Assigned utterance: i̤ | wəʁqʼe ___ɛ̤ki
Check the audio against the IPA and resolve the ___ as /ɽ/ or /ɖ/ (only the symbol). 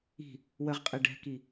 ɖ